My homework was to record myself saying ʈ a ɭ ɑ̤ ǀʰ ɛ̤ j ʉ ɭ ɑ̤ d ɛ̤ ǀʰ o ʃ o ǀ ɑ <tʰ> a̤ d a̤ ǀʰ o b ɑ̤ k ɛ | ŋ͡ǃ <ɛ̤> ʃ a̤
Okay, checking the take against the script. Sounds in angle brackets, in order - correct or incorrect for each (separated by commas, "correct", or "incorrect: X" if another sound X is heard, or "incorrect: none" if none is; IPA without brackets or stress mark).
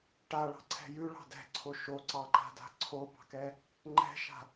incorrect: ǃ, correct